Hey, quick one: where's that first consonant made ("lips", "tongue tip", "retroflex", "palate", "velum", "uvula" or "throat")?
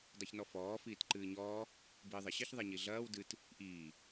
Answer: tongue tip